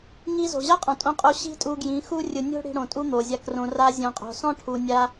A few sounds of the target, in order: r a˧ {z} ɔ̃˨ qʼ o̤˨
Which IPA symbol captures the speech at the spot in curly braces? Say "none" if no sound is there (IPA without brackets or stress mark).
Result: zʲ